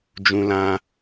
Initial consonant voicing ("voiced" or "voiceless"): voiced